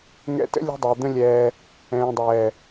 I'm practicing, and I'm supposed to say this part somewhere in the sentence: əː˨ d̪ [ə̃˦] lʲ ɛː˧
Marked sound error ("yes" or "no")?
no